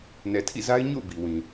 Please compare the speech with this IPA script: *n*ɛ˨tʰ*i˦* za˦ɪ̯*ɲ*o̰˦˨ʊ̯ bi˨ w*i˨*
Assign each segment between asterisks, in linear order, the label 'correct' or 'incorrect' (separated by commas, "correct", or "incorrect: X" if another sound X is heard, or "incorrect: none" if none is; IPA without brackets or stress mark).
correct, incorrect: ḭ˦˨, correct, incorrect: ĩ˨